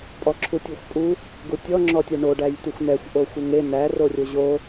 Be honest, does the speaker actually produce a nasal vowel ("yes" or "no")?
no